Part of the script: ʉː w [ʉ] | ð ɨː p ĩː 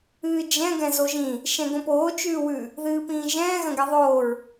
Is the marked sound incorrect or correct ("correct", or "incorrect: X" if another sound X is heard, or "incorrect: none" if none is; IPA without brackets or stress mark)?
correct